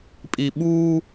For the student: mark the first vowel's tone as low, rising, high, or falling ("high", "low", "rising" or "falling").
low